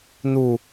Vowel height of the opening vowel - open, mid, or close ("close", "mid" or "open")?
close